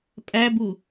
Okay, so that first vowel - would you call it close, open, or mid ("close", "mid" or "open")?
open